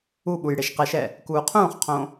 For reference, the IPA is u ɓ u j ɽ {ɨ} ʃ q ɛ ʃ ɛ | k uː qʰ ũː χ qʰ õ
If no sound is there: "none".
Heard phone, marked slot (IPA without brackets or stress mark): e